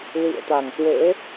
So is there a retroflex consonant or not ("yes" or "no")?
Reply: no